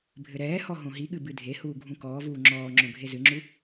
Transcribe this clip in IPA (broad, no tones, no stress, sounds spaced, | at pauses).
bʱ ɘ ɾ ɛː h ɔ ɦ õ ɦ i ɠ ɨ b ɨ dʱ e h uː ɡʱ ũ k ɔː v uː ŋ͡ǁ ɔː ŋ͡ǁ õ ɡʱ e z ɨ ŋ͡ǁ u